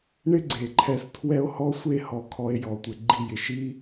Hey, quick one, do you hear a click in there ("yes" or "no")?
yes